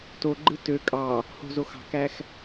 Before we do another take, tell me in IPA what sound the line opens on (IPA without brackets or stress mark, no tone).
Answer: t